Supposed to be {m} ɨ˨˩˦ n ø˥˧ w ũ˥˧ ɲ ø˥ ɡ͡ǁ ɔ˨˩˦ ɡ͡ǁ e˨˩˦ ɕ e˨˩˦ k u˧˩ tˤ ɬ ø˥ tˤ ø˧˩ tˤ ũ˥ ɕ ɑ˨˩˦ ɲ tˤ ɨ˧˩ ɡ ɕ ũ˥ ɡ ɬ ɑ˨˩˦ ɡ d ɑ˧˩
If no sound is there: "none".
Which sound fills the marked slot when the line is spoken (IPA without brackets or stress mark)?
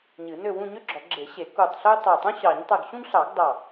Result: ɲ